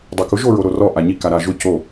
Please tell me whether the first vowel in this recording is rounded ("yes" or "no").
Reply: yes